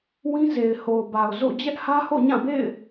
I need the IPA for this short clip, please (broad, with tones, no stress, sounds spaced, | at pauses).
w ĩ˦ z e˨ ɪ̯ h o˨ ʊ̯ b a˨ ʊ̯ z o̰˦˨ d͡ʑ ɛ˦ ʔ h ä˦ h o̰˦˨ ɲ ã˦˨ b ḛ˦˨ ɪ̯